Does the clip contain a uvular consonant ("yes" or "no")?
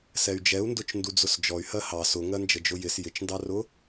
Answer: no